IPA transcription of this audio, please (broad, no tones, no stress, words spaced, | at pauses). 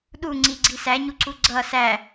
ɗuŋ͡ǀiɡ͡ǀi sæɲuǀu ɡ͡ǀʌ sæ